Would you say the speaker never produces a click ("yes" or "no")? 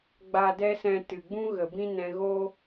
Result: yes